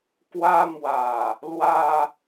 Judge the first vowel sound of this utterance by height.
low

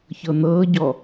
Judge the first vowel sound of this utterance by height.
mid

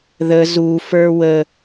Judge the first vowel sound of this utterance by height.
mid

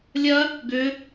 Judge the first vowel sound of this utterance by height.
low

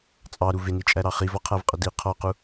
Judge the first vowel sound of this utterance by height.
low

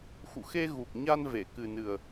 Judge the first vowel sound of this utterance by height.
high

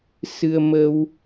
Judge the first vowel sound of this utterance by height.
high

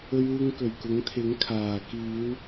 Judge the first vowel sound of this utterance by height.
mid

